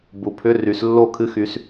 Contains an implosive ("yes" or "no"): no